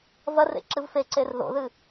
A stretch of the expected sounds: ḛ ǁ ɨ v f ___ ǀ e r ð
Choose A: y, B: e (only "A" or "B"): B